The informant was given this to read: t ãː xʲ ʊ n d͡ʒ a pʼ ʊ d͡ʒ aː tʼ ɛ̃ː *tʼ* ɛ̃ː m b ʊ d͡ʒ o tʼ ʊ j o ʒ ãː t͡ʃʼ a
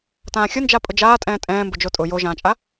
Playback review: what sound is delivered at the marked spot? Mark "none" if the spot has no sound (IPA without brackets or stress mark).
tʼ